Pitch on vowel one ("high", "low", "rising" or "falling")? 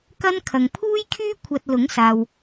high